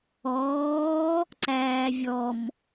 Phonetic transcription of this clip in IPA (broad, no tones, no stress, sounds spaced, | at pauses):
ɔː | ǀ æː vʲ ɔ m